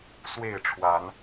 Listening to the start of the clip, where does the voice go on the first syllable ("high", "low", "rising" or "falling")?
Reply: falling